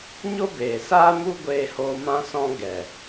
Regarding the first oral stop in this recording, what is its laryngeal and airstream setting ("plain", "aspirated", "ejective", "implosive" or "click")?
plain